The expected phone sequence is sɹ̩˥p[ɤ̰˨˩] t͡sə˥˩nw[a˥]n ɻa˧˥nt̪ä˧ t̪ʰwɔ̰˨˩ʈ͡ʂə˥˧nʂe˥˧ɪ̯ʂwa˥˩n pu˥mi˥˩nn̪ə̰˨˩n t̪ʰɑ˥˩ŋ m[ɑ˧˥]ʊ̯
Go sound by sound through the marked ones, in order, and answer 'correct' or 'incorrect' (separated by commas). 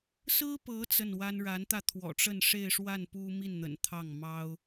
incorrect, correct, incorrect